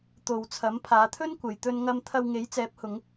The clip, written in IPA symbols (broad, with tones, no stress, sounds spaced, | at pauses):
t̪ o˧ w t͡sʰ ɐ˨˥ m pʰ aː˨˧ t̪ʰ ɵ˥ n kʷ ɐ˨ j t̪ ɵ˧ n ŋ ɐ˧ m t̪ʰ ɐ˧ w ŋ e˨˥ j t͡s ɛː˨˥ p̚ h ʊ˨˧ ŋ